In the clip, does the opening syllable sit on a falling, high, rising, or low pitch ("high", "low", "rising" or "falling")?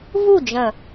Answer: falling